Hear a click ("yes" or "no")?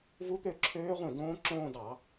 yes